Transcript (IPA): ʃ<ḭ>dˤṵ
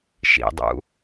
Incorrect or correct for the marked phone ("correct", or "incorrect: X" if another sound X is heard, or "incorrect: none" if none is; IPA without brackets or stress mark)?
correct